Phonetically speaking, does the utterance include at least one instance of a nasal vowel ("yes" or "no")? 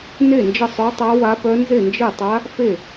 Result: no